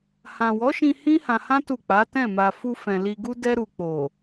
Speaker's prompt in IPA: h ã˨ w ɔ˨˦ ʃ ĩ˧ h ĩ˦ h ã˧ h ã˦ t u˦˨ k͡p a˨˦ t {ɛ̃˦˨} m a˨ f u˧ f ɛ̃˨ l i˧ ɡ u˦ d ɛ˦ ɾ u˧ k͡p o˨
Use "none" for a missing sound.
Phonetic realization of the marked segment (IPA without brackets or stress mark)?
ɛ̃˦˨